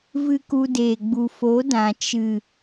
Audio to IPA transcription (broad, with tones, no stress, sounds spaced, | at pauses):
v ɨ˦ k u˧ d eː˨ ɡ͡b u˨ f o˨˦ d ã˨ t͡ʃ ɨ˨